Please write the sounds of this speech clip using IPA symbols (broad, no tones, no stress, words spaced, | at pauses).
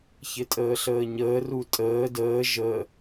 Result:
çɪtʼəːɬəːɲəː rutʼəː dəː ʒə